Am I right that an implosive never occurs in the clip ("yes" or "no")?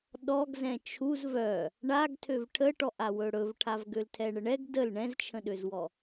no